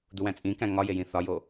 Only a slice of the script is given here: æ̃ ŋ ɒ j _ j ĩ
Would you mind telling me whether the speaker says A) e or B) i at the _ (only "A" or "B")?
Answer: A